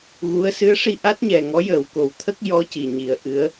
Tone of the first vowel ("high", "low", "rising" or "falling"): rising